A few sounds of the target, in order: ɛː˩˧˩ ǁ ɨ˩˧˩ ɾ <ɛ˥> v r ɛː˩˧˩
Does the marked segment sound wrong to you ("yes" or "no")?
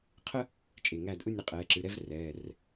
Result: no